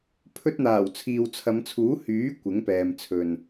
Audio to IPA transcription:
pʰ ɵ˧ t̚ n̪ aː˨˩ w t͡sʰ iː˨ w t͡sʰ ɐ˨˧ m t͡sʰ uː˨˥ h yː˨˥ kʷ ɪ˨˥ ŋ p ɛː˨ m t͡sʰ ɵ˨ n

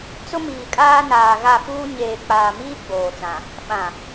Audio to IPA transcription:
t͡s ʊ˦ m iː˨ kʼ aː˦ n aː˨ ɣ a˦˨ f uː˦ ɲ eː˨ k͡p aː˨ m iː˦ ɡ͡b oː˨ t͡s ã˨ | ɓ ã˨

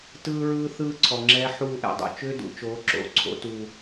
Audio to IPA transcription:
t ɯː˦ ɹ ɯː˦ θ ɯː˦ ǀʰ ɔ˨ ŋ͡ǁ ɛː˦ ħ uː˦˨ ʔ ɛ̰˨ dˤ ṵ˦ t͡ʃ ʏː˦ d ṵ˨ t͡ʃ o˨˦ ǁ o̰˨ ǀʰ o̰˦ t u˨

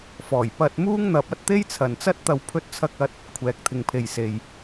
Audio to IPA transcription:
f ɔː˨˩ j p ɐ˧ t̚ m uː˥ ŋ n̪ ɐ˧ p̚ ɐ˥ t̚ t̪ e˥ j t͡sʰ ɐ˨ n t͡s ɐ˥ t̚ t̪ ɐ˧ w pʰ ɵ˧ t̚ t͡sʰ ɐ˧ k̚ ɐ˧ t̚ | kʷʰ ɛː˨ k̚ t̪ʰ ɪ˨ ŋ pʰ e˨ j s e˨ j

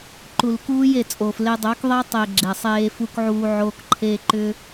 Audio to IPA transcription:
ǃ u˨ l k uː˦ j e˨ t͡sʼ o˨ f l e˦ dˤ œ˨˦ k ðˤ e˦ tˤ e˨ ɡ͡ǁ e˨ sˤ eː˦ f u˦ k ʕ uː˦ ʕ o˦ k ǃʰ e˦ ǃ ʏ˦

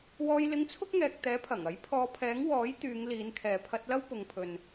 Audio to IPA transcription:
w ɔː˧ j l ɪ˧ ŋ t͡sʰ ʊ˥ k̚ ŋ ɛː˨ k̚ t̪ ɛː˨˥ pʰ ɐ˨˩ ŋ ɐ˨˥ j pʰ ɔː˨˧ pʰ ɛː˨˥ ŋ w ɔː˨˥ j t̪ yː˨˧ ŋ l iː˨˧ n kʰ ɛː˨ pʰ ɐ˧ t̚ l ɐ˥ w p ʊ˨ ŋ pʰ ɵ˨ n

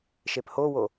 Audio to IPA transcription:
ʃ e p h o w o

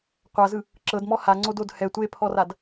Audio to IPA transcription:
qʷ a z ɯ | ǁ ɤ d m ɔ h a ŋ͡ǀ o d o d h ɛ tʷ e pʰ ɔ r a d

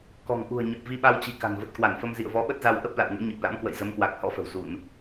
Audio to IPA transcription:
k ɔ̤˨˩ ŋ ʔ ṳ˨˩ ə̯ ɲ ə˨˩ p̚ v i˧ ɓ a˧ w t͡ɕ i̤˨˩ k a̤˨˩ n v ə˨˩ t̚ k w a˧˩ n f ə˧ m z ḭ˧˨ ə̯ v ɔ˨˦ ɓ ə˦˥ t̚ z a˧ w ʔ ə˦˥ p̚ l a̰˧˨ w ŋ ḛ˧˥ ɲ ə˨˩ p̚ l a̰˧˥ m k w ə̰˧˨ j z ə˨˦ m k w a˨˩ k̚ h ɔ̰˧˥ f ə̤˨˩ w z u˧˩˨ n

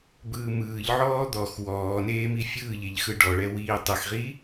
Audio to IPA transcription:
b ɯː m ɯː ʎ ʕ ɔː d̪ ɔ x w ɔː n eː m i fʲ ɯː ʎ e ʎ x ɯ ɖ ɔ ɭ ɛ w iː tˤ ɯ x ʁ iː

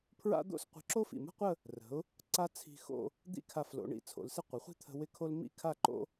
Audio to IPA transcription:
pʰ ɹ a̰˥ d̪ o̰˥˧ s qʷ ə̤˧ ǁ o˥ f ḭ˧˩ m ə̤˥ qʷ ə˥˧ | r ə̤˩˧ ʊ̯ | ǀ a˥ t͡sʰ i̤˧ x o̰˥˧ | d̪ ḭ˥˧ kʰ a˧˩ f l o̰˩˧ ɳ ḭ˧ t͡sʰ o̰˩˧ l s ɪ˥ qʷ ɪ˩˧ χʷ i̤˥ t̪ʰ ə̤˧ w ɪ˥ kʰ o˥ l m ḭ˥˧ kʰ a˥˧ ǃ o̰˥

